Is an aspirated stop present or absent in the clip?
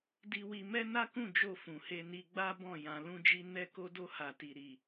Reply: absent